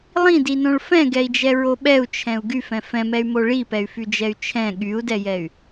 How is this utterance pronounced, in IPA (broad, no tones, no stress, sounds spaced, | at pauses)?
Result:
lˠ ĩ d i n õ ɭ f ɛ̃ ɡ ɛ i̯ d͡ʒ ɛ ɹ o ɓ ɛ u̯ t͡ʃʰ ɛ̃ u̯ ɡ y f ɛ̃ f ɛ̃ m ɛ y̯ m o ɭ i p ɛ y̯ f y d͡ʒ ɛ y̯ t͡ʃʰ ɛ̃ ɠ y u̯ d ɛ j ɛ y̯